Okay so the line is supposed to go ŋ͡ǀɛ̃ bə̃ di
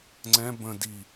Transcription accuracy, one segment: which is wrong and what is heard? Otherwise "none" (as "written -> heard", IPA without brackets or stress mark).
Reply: none